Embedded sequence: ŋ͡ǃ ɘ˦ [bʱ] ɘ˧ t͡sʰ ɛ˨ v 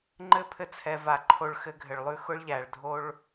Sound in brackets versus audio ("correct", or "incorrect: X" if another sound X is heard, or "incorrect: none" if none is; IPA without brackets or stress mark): incorrect: pʰ